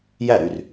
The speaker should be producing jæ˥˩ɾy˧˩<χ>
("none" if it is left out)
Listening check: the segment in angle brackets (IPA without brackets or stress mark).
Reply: r